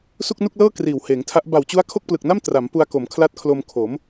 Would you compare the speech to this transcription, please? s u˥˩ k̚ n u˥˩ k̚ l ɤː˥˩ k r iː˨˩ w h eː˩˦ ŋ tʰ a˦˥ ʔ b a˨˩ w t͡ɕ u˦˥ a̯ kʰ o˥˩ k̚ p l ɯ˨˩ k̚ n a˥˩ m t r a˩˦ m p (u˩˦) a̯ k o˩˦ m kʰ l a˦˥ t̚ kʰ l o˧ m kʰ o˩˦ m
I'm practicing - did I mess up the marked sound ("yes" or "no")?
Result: yes